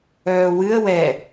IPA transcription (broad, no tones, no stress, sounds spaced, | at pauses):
œː w ɨ ə̯ w ɛ